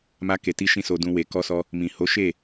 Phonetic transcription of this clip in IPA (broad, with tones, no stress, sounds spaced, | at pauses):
m a˧ k e˨ t i˧ ʃ ĩ˦ s o˧ d ũ˧ w e˨ k ɔ˧ s ɔ˧ | m ĩ˨ h o˨˦ ʃ e˦˨